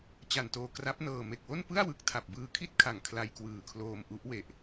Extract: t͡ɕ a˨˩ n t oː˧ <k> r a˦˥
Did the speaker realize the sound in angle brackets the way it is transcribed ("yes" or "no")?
yes